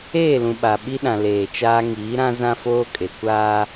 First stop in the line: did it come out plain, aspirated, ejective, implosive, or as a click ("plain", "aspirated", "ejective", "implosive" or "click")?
implosive